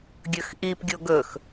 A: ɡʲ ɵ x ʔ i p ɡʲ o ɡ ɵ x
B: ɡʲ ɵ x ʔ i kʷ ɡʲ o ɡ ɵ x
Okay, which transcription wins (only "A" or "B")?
A